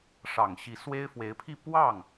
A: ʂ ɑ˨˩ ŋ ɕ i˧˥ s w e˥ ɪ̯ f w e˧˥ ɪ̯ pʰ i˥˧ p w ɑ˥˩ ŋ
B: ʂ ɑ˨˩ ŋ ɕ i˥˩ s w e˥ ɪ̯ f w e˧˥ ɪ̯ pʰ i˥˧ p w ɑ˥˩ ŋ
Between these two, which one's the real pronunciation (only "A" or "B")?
A